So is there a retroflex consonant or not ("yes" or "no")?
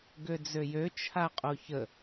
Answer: no